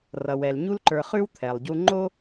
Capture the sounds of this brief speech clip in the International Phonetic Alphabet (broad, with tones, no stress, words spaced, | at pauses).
rʌ˩wɛ˩lɲu˦lǃə˞˨ χʉ˥wt̪ʰɛ˩lˠɟu˦ ŋ͡ǃo˥